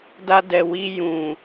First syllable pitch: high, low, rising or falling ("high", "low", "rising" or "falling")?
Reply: high